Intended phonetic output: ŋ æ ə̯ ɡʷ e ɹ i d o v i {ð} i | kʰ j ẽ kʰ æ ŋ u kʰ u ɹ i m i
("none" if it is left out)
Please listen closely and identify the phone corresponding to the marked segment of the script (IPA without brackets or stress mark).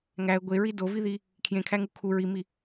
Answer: ð